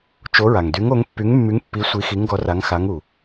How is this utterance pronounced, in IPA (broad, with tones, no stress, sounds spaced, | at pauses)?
t͡ʃ o˨˥ ɹ a˩ ŋ d y˨˥ ŋ o˨˥ ŋ pː y˨˥ ŋ mː y˨˥ ŋ pː i˨˥ sʷ i˨˥ x i˨˥ ŋ ɡ ɔ˨˥ r a˨˥ ŋ x a˨˥ ŋ u˩